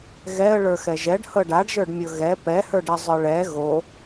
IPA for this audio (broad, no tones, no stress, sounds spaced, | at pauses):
ɣ ɛ ə̯ ɭ ə˞ x ɛ ʒ ɛ ɖ h ɤ ɖ a ɖ ʒ ə˞ ɖ mʲ ɤ ɣ ɛ p ɛ h ə˞ ɖ ɛ zˤ ə˞ ɭ ɛ ɣ o